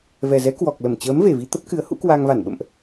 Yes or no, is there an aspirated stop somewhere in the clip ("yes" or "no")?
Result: no